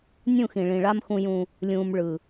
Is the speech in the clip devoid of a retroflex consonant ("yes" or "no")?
no